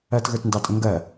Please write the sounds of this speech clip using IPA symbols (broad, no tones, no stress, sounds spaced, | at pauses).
ɜ t ɣ ə˞ t n d ɑ tʼ ə̃ ŋ ɡ ɜ